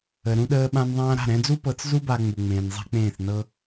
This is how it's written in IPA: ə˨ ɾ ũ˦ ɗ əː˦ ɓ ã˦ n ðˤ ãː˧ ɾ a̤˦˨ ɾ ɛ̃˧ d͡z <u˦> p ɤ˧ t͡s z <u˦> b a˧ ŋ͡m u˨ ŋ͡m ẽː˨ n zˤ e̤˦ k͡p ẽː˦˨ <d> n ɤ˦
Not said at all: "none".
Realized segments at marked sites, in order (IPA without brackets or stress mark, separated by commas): u˦, u˦, θ